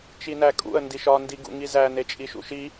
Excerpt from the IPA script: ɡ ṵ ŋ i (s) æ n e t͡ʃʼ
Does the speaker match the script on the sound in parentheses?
no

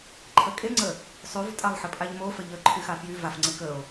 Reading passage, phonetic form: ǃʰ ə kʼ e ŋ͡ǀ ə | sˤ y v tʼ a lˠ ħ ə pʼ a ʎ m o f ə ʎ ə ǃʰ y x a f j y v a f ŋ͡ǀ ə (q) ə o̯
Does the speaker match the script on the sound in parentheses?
no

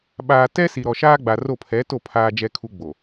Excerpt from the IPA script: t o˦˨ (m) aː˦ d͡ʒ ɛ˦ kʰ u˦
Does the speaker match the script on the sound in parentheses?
no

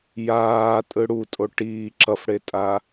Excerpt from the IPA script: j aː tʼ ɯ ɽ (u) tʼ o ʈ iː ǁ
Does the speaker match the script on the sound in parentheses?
yes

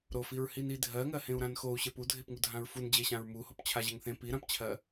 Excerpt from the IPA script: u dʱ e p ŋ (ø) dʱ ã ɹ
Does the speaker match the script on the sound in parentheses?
no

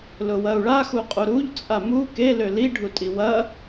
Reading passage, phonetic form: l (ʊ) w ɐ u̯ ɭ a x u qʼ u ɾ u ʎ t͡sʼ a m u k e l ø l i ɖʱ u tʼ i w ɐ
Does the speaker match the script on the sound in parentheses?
yes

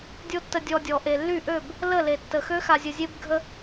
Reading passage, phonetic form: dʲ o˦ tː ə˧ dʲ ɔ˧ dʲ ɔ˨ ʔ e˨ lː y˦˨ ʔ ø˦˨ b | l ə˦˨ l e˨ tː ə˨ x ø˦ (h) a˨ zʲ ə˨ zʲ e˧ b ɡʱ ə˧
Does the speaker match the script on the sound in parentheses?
no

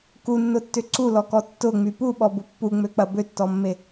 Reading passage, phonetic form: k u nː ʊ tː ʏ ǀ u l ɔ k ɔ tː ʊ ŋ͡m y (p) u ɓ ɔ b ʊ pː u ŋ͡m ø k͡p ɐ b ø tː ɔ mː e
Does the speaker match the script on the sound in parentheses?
yes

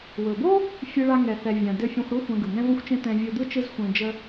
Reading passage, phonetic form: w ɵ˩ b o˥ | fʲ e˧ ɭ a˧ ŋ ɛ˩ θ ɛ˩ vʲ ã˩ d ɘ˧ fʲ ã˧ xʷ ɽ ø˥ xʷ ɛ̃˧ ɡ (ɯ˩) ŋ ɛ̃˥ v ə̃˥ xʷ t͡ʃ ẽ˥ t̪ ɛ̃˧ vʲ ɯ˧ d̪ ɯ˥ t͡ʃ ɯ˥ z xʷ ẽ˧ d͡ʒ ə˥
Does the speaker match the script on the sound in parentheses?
yes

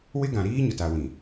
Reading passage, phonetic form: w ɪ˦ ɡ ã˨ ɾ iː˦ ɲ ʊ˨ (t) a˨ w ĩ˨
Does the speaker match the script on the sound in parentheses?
yes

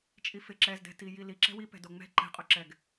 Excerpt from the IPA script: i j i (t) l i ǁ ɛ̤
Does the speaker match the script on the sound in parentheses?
no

